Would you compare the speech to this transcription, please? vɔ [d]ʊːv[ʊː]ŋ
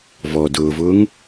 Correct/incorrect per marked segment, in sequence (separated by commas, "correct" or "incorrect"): correct, correct